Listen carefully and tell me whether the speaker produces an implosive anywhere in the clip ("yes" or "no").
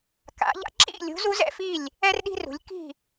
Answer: yes